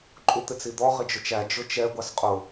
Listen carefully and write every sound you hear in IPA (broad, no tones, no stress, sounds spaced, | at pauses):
ǃʼ u t̪ ɪ t͡s i d̪ ɔ ʁ ɪ d͡ʒ ʊ t͡ʃ æ d͡ʒ ʊ t͡ʃ ɛ ɡʷ ɑ s qʼ ʊ